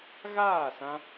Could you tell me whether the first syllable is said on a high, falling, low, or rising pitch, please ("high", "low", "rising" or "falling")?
falling